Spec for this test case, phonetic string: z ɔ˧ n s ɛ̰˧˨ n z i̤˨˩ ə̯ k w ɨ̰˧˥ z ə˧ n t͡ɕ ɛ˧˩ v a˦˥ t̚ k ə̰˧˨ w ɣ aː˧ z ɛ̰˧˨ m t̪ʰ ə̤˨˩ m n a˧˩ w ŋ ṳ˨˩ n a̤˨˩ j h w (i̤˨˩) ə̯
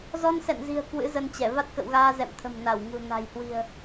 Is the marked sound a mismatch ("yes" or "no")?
no